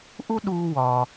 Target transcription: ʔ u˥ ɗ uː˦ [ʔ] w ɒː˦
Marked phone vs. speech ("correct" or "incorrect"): incorrect